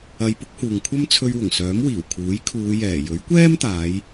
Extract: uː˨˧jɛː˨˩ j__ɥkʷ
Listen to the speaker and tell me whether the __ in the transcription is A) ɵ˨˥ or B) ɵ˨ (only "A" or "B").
A